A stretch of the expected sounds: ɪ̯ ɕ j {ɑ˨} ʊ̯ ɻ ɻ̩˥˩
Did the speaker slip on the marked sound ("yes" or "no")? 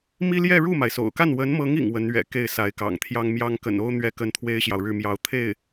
no